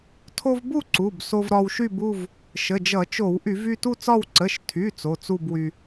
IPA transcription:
tʰo˧v bu˥˧ ǀu˩˧˩bso˧vɾɒ˧wʃy˥˧b u˥˧v | ʃə˩˧˩d͡ʒʌ˧˩˧t͡ʃo˧˩˧w ʔy˧˩˧vy˥˧tu˥˧t͡sɒ˥˧w ǀə˩˧˩ʃtʰy˩˧˩ t͡so˩˧˩t͡su˥˧bwy˧

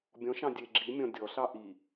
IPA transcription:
bʲɔ̃ʃɑ̃ dʲe ɡ͡ǁimʲɔ̃ dʲɔɬɑ ʔi

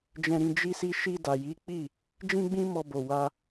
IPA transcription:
d͡ʒɛ̃˨ɾĩ˨ d͡ʒi˧si˧ ʃi˧da˨ji˨˦k͡pi˦˨ | d͡ʒĩ˦ɡ͡bĩ˦ mɔ˧bo˨ wa˧

